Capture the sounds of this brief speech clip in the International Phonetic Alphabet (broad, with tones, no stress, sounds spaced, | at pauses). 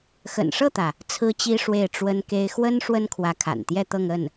x ə̰˨˩ n ʂ ɤ˥˩ t̪ ä˩ | t͡sʰ ɹ̩˥ t͡ɕ i˥ ʂ w e˥˩ ɪ̯ ʈ͡ʂ w ə˥ n k e˥ ɪ̯ x w ə˥ n ʂ w ə˥ n kʰ w ä˧˥ kʰ a̰˨˩ n t̪ j ɛ˥˧ t̪ ɤ˥˧ ŋ ə˥˩ n